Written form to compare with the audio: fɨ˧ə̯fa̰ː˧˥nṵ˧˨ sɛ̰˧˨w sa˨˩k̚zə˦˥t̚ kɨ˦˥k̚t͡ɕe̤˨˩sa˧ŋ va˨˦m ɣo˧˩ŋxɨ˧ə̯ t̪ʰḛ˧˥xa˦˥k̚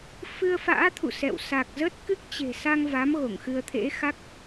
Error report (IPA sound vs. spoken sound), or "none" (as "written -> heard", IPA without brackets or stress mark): n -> t̪ʰ